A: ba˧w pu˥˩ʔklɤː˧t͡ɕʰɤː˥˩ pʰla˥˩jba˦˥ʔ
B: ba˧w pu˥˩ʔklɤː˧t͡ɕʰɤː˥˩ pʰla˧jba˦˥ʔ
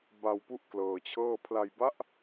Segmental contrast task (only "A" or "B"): B